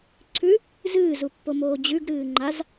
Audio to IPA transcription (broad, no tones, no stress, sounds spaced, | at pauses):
ǀʰ ʉ | z ɨː z u pː o m oː d͡ʑ ʉ ɡ ɾ ɨː ŋ͡ǃ a z